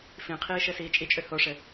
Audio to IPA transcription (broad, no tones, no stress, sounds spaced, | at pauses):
f ĩ qʰ iː ʃ ɘ s iː t͡ʃʼ i t͡ʃʼ ø h o ʂ ɘ